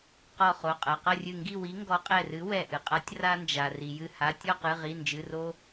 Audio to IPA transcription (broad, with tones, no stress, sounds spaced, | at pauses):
q ɔ˧˩ χ o˩˧˩ qʼ ɐ˩˧˩ q ɐ˥˨ rʲ ɨ˧˩ ŋ ɡ i˥˨ w i˨˥ ŋ ɡ ɔ˨˥ qʼ ɛ˧˩ r ɨ˨˥ w ɛ˧˩ ʔ ɨ˩ qʼ a˨˥ tʲ r a˦ n d͡ʒ a˩ r i˩ j ɨ˧˩ h a˩˧˩ tʲ ɔ˥˨ q ɨ˩˧˩ ʁ i˩˧˩ n d͡ʒ ɨ˩˧˩ r o˦